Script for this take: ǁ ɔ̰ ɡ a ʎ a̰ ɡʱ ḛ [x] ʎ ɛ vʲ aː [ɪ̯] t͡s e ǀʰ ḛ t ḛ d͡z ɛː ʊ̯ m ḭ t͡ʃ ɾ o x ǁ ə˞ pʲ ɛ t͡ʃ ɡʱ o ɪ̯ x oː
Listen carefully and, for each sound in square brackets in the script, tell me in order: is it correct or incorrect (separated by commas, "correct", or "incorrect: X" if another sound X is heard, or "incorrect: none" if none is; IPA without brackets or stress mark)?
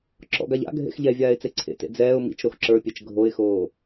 correct, correct